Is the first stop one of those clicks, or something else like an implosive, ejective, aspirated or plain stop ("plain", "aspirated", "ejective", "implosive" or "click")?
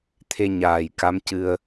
aspirated